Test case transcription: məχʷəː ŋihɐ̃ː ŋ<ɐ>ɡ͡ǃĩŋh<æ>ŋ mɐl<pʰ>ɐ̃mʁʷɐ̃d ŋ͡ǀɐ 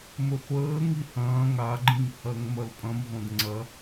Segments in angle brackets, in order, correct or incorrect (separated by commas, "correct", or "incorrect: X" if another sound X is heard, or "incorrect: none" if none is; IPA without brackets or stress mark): incorrect: a, incorrect: ɐ, incorrect: pʼ